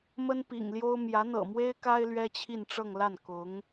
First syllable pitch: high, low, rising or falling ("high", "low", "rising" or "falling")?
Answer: high